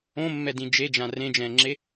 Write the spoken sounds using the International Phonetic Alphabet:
õ mː ɛ d ĩ d͡ʒ e d͡ʒ ã r ẽ d͡ʒ ɛ̃ː ŋ͡ǁ e

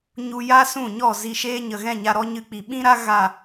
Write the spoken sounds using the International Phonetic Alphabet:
ɲ u˧ j a˦ s ũ˦˨ ɲ ɔ˦˨ z i˧ ʃ eː˦ ɲ ə˨ ɣ ɛ̃˦˨ ɲ a˧ ɾ ɔ˦ ɲ ɨ˧ k͡p i˨ ɓ ĩ˦ ɾ a˦ ɣ a˦˨

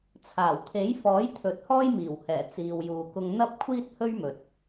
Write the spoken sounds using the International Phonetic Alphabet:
t͡sʰ aː˨˩ w t̪ʰ e˨˥ j f ɔː˨˥ j t̪ʰ ɵ˨˥ t̚ h ɔː˥ j m iː˨˩ w h ɛː˨˩ t͡s iː˨ w j uː˨ k ʊ˧ ŋ n̪ ɐ˥ p̚ kʷʰ iː˥ t̚ h ɵ˥ ɥ m ɵ˨ t̚

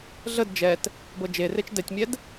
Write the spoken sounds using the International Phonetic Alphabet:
ɮ ə d d͡ʒ ɛ t | b ɤ d͡ʒ e r e t͡ʃ d ɛ tʲ mʲ ɛ d

